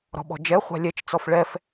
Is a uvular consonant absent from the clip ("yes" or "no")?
no